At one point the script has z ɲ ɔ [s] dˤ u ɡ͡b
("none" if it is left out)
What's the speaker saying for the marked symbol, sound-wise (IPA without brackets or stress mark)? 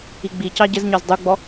z